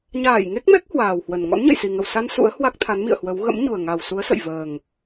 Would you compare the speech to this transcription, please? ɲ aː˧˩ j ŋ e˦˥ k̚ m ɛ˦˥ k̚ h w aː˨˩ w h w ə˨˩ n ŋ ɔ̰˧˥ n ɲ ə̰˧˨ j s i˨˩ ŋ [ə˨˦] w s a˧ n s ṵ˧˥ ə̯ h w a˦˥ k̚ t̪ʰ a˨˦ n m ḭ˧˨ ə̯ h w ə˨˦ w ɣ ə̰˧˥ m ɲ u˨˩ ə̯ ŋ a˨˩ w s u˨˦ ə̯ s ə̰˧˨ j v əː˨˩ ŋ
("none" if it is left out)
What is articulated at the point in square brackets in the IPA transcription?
ə˧˩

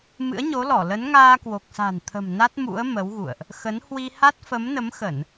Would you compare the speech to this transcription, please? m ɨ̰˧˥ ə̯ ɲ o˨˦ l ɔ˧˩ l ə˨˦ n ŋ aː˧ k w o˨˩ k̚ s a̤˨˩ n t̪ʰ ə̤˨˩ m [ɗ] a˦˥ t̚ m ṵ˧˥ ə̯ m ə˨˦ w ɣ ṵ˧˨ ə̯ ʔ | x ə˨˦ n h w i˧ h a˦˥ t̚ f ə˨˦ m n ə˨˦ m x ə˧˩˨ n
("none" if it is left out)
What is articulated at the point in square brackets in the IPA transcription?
n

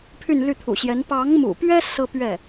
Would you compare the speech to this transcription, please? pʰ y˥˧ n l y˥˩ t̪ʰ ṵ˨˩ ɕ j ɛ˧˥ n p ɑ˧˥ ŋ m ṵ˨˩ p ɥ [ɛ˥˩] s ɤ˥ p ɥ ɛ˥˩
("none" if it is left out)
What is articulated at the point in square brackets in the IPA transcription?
ɛ˥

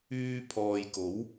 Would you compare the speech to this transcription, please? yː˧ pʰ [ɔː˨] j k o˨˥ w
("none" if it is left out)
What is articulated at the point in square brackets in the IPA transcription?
ɔː˨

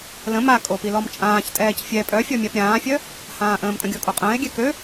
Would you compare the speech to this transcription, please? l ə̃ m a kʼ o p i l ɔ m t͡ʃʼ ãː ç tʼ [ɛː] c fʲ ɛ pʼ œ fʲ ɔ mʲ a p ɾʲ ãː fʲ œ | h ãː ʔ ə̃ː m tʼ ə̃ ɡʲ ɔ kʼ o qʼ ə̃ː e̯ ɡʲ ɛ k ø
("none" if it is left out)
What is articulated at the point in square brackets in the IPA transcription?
ɛː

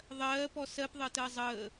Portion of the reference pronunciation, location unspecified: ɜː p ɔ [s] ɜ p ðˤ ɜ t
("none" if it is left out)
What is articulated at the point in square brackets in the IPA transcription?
s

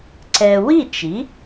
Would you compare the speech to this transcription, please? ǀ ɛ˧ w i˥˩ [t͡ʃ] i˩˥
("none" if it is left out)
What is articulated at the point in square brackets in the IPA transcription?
t͡ʃ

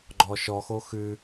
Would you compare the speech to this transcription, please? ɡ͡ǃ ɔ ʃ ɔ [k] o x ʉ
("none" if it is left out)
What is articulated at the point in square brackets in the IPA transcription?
x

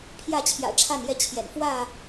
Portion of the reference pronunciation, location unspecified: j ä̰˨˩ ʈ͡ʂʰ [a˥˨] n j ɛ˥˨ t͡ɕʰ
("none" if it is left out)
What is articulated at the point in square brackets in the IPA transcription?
a˥˨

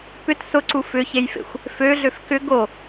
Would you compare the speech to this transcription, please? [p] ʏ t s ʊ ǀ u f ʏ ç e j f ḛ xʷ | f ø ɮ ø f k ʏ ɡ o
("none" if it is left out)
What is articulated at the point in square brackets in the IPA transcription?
p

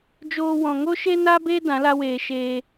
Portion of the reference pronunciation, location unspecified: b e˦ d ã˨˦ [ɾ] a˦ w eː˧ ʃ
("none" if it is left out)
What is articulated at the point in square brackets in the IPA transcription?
l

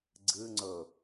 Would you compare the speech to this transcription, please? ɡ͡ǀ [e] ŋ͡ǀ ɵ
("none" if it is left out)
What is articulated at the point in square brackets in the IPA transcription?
ɨ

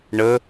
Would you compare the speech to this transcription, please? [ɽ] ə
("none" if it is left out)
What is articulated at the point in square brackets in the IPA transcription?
ɳ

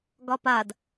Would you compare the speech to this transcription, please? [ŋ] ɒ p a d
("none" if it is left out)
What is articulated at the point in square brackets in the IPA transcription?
ɡ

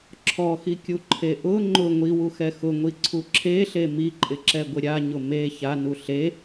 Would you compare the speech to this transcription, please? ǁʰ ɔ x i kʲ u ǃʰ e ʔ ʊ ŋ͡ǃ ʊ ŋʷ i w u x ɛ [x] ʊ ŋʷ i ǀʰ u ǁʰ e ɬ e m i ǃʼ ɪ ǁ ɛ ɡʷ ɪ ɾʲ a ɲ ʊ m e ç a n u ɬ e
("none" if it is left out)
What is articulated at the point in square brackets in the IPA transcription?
x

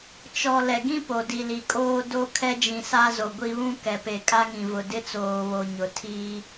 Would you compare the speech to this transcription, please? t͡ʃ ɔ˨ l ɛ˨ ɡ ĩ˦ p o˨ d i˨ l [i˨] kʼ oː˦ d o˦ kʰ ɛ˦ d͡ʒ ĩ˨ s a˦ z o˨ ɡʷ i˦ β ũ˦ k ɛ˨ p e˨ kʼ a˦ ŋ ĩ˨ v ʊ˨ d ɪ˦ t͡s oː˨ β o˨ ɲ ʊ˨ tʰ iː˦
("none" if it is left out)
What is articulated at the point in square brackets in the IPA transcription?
i˨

